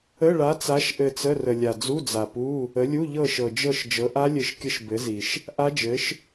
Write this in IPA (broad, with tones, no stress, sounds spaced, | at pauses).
ə˧˥˧ ɭ a˨˥ t͡s a˨˥ ʃ ʔ ɘ˦˨ t͡s ə˧˥˧ r ə˨ lʲ a˨ d͡z u˧˥˧ d͡z a˨ p u˧˥˧ | ə˨˥ lʲ u˧˥˧ ʎ ɤ˦˨ ʃ ɤ˨ d͡ʒ ɤ˦˨ ʃ d͡ʒ ɤ˨˥ ʔ a˦˥ lʲ ɘ˦˨ ʃ kʲ ə˦˥ ʃ b ɘ˨˥ z i˨ ʃ | ʔ a˦˥ d͡ʒ ɘ˨˥ ʃ